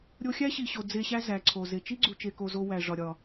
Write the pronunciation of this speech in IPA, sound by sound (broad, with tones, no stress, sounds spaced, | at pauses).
ɾʲ o˧ xʲ æ˦ ɕ i˨ ɕ o˨ d͡z e˧ ɕ æ˦ z æ˨ ǀʰ o˨ z e˨ t͡ʃ i˦ ɡ͡ǀ u˧ t͡ʃ e˧ k o˧ z o˧ w æ˨ ʐ ɒ˨ ɾʲ ɒ˨